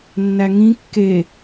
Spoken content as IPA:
nː æ ŋ ĩ kː e

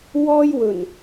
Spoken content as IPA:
w ɔː˥ j w ɵ˨˩ n

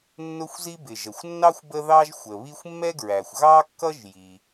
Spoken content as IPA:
nː ʊ˥ xʷ z i˥ b ɪ˩ ʒ ə˩ xʷ nː ɑ˥ xʷ b ə˥ ð ɑ˥ ʒ xʷ ə˩ β i˥ xʷ mː ɛ˥ ɡ ɹ æ˩ xʷ ɣ ɑ˥ kː ʌ˥ ʒ j i˩

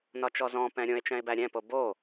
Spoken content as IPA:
n ɒ t͡ʃ ɔ z ɔ̃ p ɛ̃ ɾʲ õ e̯ t͡ʃ ɛ̃ e̯ b æ ɾʲ ɛ̃ p o b o

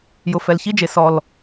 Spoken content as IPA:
j ʊ˨ f ɛ˨ l ç i˦ d͡ʒ e˨ s ɔ˨ l

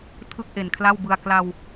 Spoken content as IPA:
tʰ ɯ˥˩ k̚ ʔ e˨˩ n kʰ l a˥˩ w b ɯ˧ a̯ k l a˧ w

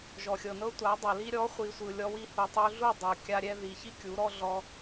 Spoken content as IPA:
ʒ ɔ˨ xʲ ɤ˨ n ɤ˦ tʷ a˨˦ dˤ ɤ˨ l i˦ ɾʲ ɔ˨˦ χʷ i˨ sʷ ɯ˨ lʲ ɔ˧ w i˧ h u˨ tˤ u˧ ɮ u˦˨ dˤ ɤ˨ kʲ a˧ ɾʲ ɛ˧ ð i˨ ç i˦ kʲ u˨˦ ɾ ɔ˦ ɮ ɔ˦

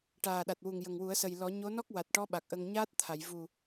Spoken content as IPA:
ʈ aː˨˩ ɗ a˨˩ t̚ w u˨˩ ŋ j ə˨˩ ŋ w u˨˩˦ ə̯ s ə˨˩ j l ɔ˨˩˦ ɲ o˧˥ n ɔ˦˥ k̚ w a˨˩ t̚ ʈ ɔ˧˥ ɓ a˨˩ k̚ ʔ ə˧ ŋ ɲ aː˦˥ t̚ t̪ʰ a˨˩˨ j v u˨˩

